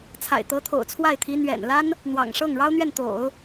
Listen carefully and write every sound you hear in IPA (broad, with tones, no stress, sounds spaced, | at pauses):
t͡sʰ a̰˨˩ ɪ̯ t̪ ɤ˧˥ t̪ʰ o̰˨˩ ʊ̯ t͡sʰ w a˥˩ ɪ̯ t̪ʰ i˧˥ n̪ ɥ ɛ̰˨˩ n l a˥ n | n̪ w ɑ̰˨˩ ŋ ʂ ɤ˥˩ ŋ ɻ ɑ˥ ʊ̯ n̪ ɥ ɛ˥˩ n t̪ o̰˨˩˦ ʊ̯